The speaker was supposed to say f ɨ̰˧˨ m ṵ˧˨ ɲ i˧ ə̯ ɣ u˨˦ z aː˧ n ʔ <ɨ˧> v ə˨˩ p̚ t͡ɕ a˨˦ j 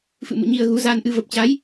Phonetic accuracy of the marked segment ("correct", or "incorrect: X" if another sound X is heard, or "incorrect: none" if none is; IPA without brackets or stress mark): correct